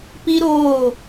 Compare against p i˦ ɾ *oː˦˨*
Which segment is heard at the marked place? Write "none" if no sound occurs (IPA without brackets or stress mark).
oː˦˨